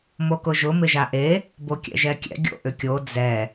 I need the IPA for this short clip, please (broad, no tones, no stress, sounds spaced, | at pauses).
m o k ʊ ʒ ʊ m ɪ ʒ a ʔ e | b o kʲ ɛ̰ ʒ ɛ kʲ ɛ̰ ɡʲ o̰ ʔ ʏ kʲ o d͡z ɛ